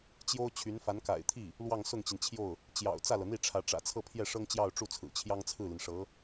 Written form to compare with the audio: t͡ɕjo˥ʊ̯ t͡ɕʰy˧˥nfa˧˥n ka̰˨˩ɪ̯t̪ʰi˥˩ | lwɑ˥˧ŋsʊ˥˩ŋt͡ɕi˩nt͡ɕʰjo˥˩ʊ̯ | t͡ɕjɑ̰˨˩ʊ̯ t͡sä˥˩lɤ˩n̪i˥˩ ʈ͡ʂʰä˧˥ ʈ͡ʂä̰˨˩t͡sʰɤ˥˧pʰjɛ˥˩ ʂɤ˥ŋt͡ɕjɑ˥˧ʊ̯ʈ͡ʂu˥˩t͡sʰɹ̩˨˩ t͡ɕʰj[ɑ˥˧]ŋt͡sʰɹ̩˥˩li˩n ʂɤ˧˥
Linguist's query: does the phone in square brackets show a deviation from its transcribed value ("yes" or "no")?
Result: yes